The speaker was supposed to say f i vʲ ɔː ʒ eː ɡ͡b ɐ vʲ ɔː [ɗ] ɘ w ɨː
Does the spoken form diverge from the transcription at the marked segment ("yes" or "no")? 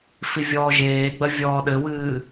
no